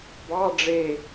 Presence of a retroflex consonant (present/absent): present